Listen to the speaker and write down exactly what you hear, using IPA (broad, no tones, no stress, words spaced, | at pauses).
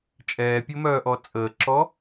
t͡ʃʼɛːpʲəmœːʔɔ t͡sʼəːǁɔ